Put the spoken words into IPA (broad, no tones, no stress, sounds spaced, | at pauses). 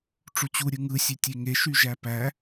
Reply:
ʈ͡ʂ u t͡ɕ u ɾʲ ɯ ŋ ɯ sʲ e tʲ e ŋ e ʃ y ʒ æ p æ